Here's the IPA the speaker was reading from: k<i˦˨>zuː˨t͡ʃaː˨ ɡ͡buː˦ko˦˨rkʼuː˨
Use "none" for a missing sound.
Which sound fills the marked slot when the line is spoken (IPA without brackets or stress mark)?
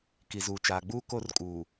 i˨